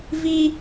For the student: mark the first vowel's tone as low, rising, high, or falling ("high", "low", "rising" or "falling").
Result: high